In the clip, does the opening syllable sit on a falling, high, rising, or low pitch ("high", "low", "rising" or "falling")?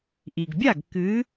low